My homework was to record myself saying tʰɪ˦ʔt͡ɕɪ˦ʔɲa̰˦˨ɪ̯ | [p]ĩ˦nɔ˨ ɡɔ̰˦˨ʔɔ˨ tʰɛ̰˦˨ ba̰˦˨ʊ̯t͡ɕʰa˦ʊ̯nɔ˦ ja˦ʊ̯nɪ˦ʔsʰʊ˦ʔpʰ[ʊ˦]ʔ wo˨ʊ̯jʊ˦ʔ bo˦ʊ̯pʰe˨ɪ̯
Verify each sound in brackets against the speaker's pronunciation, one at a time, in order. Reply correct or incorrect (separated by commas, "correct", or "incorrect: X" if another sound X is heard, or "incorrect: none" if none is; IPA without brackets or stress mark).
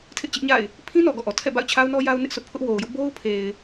incorrect: pʰ, correct